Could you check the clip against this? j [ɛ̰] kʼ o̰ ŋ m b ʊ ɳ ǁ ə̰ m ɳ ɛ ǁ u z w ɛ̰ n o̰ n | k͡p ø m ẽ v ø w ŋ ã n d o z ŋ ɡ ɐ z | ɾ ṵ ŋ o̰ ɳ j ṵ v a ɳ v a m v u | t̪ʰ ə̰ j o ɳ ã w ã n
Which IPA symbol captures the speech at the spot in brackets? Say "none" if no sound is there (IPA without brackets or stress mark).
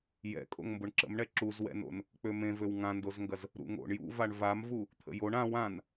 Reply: ɛ̰